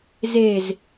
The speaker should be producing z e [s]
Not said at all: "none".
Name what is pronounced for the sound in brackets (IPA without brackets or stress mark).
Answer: z